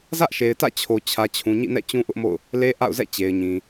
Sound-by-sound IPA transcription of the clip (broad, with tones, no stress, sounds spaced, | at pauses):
z ä˦ ʔ ʃ e˨ ɪ̯ t ä̰˦˨ t͡ɕʰ o˨ t͡ɕʰ ä˨ t͡ɕʰ ũ˨ ɲ ḭ˦˨ n ɛ̰˦˨ t͡ɕ ũ˦ ʔ ʊ˦ ʔ m o̰˦˨ ʊ̯ | l e˦ ʔ a̰˦˨ ʊ̯ z ɛ̰˦˨ t͡ɕ e˨ ɪ̯ ɲ ĩ˨